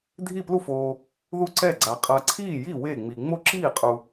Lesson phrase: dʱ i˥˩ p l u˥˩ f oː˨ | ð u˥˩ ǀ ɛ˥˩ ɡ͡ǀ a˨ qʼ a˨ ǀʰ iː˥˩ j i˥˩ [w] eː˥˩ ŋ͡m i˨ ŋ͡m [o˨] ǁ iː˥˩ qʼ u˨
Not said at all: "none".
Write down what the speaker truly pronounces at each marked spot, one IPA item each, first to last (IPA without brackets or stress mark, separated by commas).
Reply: w, o˥˩